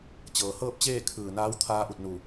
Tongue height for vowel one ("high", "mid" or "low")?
mid